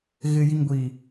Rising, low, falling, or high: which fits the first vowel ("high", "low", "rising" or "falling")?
low